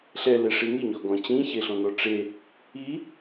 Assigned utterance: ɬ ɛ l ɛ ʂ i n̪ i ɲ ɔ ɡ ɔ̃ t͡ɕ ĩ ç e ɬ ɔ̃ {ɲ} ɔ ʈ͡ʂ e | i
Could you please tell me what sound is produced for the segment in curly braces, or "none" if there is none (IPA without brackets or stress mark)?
n̪